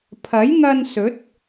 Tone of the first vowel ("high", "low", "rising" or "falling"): rising